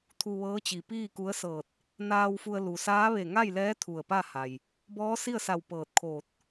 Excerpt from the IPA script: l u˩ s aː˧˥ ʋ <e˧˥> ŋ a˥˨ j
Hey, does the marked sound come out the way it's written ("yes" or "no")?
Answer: no